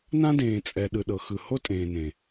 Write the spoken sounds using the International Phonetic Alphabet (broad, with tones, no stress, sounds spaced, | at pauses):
n ã˦ d ẽː˨ t͡sʼ ɛ˨ ɗ ɯ˨ ɗ ɤ˨ x ɯ˨ h o˦ tʼ ẽː˨ n ẽ˨